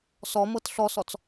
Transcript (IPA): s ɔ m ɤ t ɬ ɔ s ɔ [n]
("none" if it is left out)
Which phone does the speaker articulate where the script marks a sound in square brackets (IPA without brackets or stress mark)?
t͡s